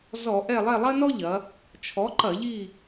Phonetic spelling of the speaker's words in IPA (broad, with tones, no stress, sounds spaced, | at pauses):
z ɔ˧˩˧ ʔ ɛ˦˨ lˠ ɛ˦˨ lˠ ɐ˥ n ɔ˥ ʎ ɐ˩˧ | t͡ʃʰ ɔ˩˥ ǃ ɐ˧˩˧ ʎ i˦˨